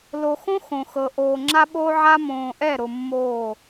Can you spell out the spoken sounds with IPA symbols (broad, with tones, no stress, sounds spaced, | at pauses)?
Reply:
l o˨ x õ˦ x õ˨ x ɤ˨ ʔ oː˨ ŋ͡ǁ a˦ ɓ oː˦ ʕ a˦ m õː˨ ʔ ɛ˦˨ ɾ ʊ˨ mː oː˦˨